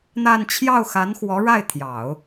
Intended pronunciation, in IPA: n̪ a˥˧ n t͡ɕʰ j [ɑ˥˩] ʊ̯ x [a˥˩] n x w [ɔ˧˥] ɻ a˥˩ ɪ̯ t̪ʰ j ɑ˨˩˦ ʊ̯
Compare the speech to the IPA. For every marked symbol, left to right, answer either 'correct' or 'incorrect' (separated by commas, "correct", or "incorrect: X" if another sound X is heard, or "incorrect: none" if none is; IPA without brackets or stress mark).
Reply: correct, incorrect: a˧˥, correct